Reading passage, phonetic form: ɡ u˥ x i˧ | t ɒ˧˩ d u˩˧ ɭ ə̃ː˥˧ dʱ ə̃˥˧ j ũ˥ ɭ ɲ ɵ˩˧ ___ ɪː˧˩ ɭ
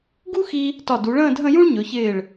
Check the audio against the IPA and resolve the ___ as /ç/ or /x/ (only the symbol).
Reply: ç